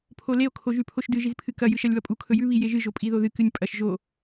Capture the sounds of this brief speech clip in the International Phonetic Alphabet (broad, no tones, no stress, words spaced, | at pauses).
pʰoleo̯ kʰoʒʉpʰoʃdɨ ʒizpʰɨkɐ jɨʃɐlʲβɐpʼu kʰɵjʉ βijeʒɨ ʒopʼiðoðɨ kɨnʲpʼɐʃ ʒo